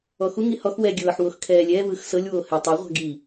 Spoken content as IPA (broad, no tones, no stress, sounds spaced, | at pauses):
ɔ x u ŋ i h ɔ x w ɛ ɡʲ ɤː ħ w o x kʰ ɛː lʲ ɛ v ɯː x s ɤ lʲ w oː h ɛ tˤ o ʁʷ a̤ ɡ i